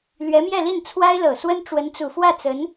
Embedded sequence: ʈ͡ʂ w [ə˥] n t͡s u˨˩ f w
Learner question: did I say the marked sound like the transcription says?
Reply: no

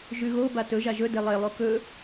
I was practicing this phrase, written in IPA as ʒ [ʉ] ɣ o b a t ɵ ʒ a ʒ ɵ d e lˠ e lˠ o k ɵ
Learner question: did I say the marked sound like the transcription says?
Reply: yes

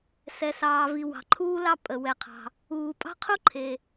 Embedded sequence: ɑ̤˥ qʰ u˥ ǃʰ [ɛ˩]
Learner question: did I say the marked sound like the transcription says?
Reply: no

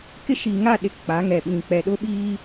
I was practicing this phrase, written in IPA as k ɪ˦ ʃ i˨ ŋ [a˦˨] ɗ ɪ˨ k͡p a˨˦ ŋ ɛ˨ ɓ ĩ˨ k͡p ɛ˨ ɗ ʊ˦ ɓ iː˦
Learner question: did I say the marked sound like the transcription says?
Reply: yes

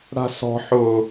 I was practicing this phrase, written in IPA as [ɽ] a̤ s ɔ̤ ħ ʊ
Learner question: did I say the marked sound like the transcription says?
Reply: yes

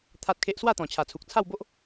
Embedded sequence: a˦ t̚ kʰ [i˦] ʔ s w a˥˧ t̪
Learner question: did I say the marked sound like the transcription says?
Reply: no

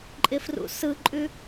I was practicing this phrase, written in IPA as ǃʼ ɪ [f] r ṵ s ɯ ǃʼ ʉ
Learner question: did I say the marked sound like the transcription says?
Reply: yes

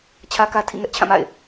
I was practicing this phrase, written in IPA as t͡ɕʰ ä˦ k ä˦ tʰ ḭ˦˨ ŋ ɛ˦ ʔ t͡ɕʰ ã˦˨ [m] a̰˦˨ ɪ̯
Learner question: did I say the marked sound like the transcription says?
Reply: yes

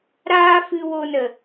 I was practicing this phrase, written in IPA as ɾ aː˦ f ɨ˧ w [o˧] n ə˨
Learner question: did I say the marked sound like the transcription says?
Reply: yes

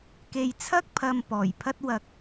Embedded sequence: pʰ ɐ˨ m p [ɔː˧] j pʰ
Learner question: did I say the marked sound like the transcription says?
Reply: no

